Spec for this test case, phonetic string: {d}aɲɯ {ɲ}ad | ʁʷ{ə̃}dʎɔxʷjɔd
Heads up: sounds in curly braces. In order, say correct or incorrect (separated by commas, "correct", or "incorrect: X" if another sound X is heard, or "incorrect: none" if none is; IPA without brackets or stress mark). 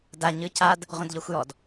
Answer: correct, incorrect: c, correct